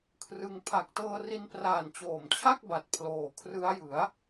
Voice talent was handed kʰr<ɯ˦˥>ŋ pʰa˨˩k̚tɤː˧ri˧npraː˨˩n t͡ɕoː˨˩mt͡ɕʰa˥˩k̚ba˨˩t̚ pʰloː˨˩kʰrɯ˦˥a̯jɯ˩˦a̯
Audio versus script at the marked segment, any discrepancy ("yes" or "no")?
yes